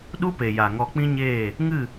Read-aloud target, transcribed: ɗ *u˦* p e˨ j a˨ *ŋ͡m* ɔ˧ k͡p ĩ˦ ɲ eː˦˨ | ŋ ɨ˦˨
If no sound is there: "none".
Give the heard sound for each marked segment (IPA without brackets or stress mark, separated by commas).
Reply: u˦, ŋ